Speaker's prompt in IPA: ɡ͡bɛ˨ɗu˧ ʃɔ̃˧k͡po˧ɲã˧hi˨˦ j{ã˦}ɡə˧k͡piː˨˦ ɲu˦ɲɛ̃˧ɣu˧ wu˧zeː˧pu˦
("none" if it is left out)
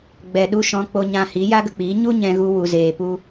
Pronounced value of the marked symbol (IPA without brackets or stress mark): a˦